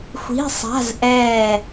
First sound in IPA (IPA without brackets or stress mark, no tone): xʷ